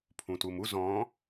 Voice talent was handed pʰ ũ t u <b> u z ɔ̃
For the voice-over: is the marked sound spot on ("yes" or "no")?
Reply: no